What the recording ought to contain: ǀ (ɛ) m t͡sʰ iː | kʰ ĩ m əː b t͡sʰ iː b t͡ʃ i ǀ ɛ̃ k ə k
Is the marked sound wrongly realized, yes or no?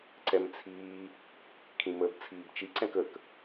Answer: no